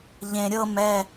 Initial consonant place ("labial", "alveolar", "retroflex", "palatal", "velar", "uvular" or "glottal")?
palatal